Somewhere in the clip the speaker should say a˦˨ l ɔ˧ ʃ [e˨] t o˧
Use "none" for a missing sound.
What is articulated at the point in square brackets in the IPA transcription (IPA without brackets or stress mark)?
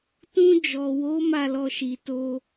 i˨